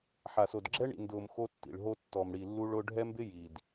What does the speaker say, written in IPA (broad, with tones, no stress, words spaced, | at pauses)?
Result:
ħa˨so˨dɡ͡ǁɛ˦ ɳḭ˨ndʊː˨m xo˦tːḭ˨ɭɦo˦ tːɔ˨mɽi˨lːu˦ɭ ʊ˦ ɖʱɛ˦mbɪ˦ ji˨d